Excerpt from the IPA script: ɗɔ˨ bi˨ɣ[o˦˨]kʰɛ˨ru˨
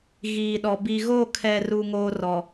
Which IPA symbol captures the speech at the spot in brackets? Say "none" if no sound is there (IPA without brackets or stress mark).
o˦˨